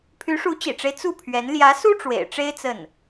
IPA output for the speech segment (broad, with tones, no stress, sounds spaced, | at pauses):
pʰ y˧˥ ʂ u˧˥ t͡ɕ ḭ˨˩ ʈ͡ʂ e˦ ɪ̯ t͡s u˥˩ pʰ ɥ ɛ˧˥ n l j ä˧˥ s u˥ ʈ͡ʂ w ḛ˨˩ ɪ̯ ʈ͡ʂ e˥ ɪ̯ t͡s ə˥˩ n